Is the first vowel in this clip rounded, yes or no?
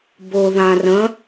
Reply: yes